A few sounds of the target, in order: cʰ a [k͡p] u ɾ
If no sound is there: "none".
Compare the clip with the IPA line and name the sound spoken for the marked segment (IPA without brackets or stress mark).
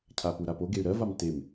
p